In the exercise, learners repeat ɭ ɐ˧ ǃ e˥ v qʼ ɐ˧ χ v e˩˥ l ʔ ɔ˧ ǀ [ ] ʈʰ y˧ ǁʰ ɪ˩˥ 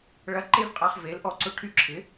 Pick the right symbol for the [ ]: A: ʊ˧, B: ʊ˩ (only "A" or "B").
A